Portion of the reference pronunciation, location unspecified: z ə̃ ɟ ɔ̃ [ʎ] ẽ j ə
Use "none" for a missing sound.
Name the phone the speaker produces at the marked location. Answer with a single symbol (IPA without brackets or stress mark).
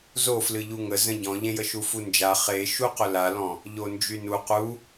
ʎ